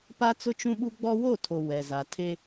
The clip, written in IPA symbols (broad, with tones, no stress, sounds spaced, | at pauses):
p a˦ t͡s ʊ˦ t͡ʃ ũ˦ ɓ u˦ ɡ͡b ɔ˦ w o˦˨ tʰ o˨ w ɛ˨ z a˨ tʰ e˦